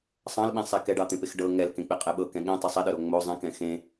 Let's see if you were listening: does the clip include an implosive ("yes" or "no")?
yes